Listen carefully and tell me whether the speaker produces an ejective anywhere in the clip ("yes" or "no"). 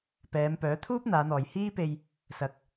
no